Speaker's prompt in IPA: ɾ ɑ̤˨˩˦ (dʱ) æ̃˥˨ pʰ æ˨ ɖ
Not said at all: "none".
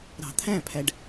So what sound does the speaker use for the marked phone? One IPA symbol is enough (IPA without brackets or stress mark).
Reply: t̪ʰ